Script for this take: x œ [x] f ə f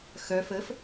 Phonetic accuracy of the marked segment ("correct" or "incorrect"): incorrect